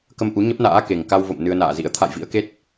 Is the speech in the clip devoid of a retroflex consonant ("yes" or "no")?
yes